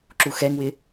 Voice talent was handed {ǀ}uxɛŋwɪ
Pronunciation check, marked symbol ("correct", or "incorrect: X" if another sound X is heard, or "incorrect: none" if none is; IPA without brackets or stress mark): incorrect: ǁ